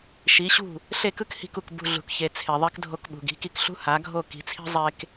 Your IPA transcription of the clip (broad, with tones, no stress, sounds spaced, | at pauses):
ʃ i˩˥ ɕ ṳ˥˩ | ɬ e˥˩ k ɯ˥ k h i̤˧ k u˩ k b ṳ˥˩ ɮ ṳ˩˥ k ç e˩˥ t͡sʰ e˩ ðˤ e˥ k dʱ o˧ k ɓ ṳ˩ ɡ i̤˩˥ k i˧ k ɬ ṳ˥ h a˩˥ ɡʱ o˥˩ k i̤˩˥ t͡sʰ i̤˥ zˤ e˥ k